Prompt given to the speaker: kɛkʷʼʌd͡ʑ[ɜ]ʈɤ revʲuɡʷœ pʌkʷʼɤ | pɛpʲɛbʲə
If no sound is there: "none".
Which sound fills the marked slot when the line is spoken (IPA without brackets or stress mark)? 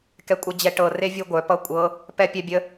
ɛ